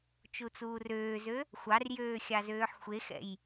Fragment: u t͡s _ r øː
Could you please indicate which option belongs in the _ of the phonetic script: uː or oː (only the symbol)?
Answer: uː